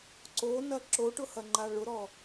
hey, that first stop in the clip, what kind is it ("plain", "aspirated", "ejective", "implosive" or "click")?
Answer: click